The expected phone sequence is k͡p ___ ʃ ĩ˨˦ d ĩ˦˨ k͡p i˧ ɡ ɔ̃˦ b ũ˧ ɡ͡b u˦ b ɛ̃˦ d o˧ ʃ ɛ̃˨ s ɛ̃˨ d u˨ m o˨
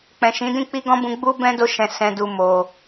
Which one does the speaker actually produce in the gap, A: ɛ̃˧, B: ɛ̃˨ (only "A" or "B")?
B